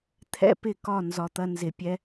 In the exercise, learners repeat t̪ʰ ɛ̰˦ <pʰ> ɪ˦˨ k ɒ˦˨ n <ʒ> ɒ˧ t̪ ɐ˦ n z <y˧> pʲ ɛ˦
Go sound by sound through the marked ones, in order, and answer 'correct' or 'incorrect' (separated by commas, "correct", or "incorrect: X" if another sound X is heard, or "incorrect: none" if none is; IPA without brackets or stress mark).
incorrect: p, incorrect: z, incorrect: ɪ˧